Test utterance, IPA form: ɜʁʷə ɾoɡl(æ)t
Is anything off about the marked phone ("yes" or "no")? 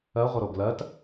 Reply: yes